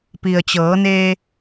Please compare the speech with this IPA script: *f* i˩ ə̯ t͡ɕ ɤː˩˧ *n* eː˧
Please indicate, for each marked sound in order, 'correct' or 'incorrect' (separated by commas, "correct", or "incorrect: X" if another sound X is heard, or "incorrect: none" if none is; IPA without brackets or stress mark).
incorrect: p, correct